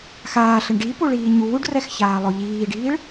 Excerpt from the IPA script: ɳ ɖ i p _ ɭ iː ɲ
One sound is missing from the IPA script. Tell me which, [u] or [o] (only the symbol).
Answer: u